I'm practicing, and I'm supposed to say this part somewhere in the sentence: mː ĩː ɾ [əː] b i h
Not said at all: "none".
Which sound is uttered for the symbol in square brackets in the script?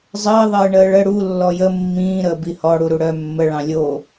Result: əː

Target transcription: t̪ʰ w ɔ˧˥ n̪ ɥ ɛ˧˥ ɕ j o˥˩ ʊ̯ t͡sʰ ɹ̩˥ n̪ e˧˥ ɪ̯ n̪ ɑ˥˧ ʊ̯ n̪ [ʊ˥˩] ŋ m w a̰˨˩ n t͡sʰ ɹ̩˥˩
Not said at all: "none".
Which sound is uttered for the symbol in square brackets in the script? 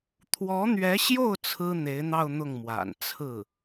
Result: ʊ˥˩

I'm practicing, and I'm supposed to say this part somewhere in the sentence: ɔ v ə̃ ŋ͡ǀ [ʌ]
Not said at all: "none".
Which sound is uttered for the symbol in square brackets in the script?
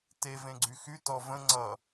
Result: ʌ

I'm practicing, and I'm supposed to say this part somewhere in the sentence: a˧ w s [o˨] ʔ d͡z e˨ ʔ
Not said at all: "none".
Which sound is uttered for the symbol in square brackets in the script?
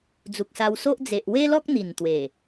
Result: o˦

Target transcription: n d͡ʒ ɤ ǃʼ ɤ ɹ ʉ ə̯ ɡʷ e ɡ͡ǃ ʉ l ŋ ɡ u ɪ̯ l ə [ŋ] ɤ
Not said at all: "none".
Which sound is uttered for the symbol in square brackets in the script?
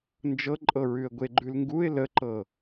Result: ǃ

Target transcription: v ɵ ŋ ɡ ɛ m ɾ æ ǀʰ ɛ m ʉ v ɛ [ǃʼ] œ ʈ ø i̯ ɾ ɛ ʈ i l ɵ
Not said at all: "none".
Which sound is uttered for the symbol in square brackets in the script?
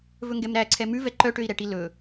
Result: ǃ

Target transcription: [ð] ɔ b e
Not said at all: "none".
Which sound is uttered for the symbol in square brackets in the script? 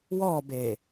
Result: w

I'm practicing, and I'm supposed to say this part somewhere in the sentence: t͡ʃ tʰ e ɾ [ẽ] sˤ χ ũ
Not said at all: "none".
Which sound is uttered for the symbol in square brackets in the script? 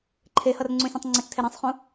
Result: ẽ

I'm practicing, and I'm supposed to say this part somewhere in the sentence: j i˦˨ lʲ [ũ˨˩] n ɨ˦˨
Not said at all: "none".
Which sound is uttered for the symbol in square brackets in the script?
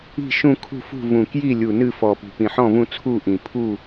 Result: u˨˩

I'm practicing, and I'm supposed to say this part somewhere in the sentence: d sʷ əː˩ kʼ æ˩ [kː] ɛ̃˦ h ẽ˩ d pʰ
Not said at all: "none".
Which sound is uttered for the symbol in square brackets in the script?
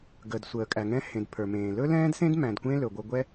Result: ŋ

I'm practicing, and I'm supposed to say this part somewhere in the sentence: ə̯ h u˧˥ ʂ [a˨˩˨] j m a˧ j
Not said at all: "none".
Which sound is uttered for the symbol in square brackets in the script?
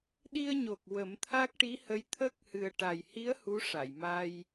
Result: a˨˩˨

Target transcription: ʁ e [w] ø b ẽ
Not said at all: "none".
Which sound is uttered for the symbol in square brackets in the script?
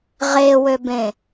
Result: w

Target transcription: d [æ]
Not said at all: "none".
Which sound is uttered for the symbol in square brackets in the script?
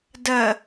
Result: ɜ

